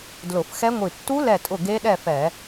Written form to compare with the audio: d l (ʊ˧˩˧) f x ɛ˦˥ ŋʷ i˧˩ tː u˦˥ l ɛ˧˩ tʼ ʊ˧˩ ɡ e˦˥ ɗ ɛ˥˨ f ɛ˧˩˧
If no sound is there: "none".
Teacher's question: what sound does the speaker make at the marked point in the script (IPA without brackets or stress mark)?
ʊ˧˩˧